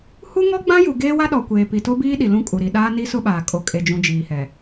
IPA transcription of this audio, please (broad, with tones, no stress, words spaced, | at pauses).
hu˦ŋɔ˦ɡ͡bã˦ju˨ ɡeː˦wa˦ɗɔ˨ kʷeː˨pi˨to˦biː˦ ɗi˨lũ˦kʼu˨ɾi˨ ɗaː˦ni˦sʊ˦ɓaː˨ kʼo˨kʼe˨ d͡ʒũ˨ d͡ʒiː˨hɛ˨